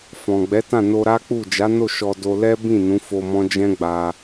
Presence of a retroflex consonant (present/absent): absent